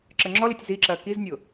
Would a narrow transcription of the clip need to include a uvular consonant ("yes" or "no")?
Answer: no